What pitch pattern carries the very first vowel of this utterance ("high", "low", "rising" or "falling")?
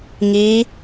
rising